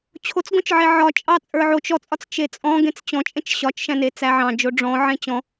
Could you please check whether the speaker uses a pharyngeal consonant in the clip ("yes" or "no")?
yes